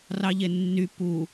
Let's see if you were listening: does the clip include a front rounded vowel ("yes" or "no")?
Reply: yes